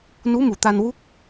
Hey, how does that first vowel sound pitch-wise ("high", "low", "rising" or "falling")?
rising